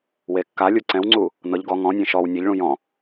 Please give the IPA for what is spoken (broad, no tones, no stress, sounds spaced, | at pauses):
w e kː a lʲ u ǀ ɛ̃ w ŋ͡ǀ u | n ɤ ʎ ɡ ɔ ŋ ɔ̃ nʲ ẽ ʃ ɔ w nʲ ɛ ʎ ɭ ũ j ɔ̃